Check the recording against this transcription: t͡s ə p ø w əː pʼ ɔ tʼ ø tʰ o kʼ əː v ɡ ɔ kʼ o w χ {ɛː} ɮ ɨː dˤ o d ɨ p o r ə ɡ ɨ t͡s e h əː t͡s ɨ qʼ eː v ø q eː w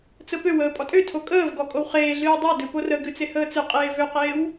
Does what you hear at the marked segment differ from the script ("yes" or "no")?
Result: yes